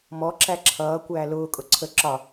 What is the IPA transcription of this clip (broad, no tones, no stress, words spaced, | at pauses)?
mɔǁæ ǁʰʌːkʷæː lʊːkʼʊ ǀʰə ǁɒ